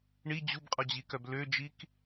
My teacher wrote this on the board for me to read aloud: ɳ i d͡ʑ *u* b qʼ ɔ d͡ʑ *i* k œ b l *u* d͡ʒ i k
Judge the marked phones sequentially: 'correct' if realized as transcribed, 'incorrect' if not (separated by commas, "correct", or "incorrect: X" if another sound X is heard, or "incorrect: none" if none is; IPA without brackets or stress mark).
correct, correct, incorrect: ø